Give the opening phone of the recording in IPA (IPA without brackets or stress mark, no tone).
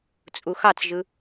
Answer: t͡sʼ